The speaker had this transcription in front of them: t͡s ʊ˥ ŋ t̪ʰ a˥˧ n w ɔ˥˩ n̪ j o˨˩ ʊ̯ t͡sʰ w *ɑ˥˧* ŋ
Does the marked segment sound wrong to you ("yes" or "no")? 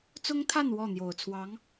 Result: yes